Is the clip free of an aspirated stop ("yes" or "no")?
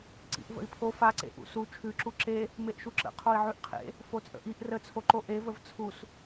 no